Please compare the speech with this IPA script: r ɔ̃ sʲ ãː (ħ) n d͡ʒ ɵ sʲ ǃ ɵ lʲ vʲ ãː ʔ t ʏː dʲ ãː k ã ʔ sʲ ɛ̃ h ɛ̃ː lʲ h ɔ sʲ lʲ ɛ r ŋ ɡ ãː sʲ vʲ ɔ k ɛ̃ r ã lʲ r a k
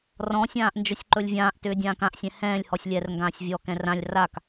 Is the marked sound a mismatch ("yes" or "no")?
yes